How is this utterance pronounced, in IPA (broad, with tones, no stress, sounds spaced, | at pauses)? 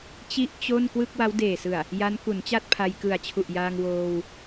t͡ɕ i˥˩ ʔ t͡ɕ o˥˩ n k w ɯ˥˩ k̚ w a˦˥ w d eː˨˩ s ɯ˨˩ a̯ | j a˦˥ n k u˩˦ n t͡ɕ a˥˩ t̚ pʰ a˧ j k ɯ˨˩ a̯ t͡ɕʰ u˨˩ ʔ j aː˧ ŋ w oː˧ w